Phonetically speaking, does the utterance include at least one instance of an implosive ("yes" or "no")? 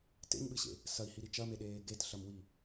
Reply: yes